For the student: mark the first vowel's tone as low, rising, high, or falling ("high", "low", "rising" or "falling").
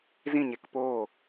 falling